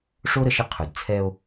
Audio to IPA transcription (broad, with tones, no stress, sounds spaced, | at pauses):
ʂ o˦ ɾ ə˨ ʃ ə˦ qʰ ɵ˨ d t͡sʰ ɛ˦ o̯